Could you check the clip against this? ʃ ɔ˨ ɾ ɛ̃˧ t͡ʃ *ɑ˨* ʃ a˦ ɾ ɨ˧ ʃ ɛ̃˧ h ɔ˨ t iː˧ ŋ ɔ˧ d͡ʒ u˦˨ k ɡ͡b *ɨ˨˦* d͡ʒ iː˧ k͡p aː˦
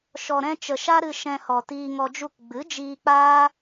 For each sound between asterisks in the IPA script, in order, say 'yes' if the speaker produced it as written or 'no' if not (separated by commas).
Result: no, yes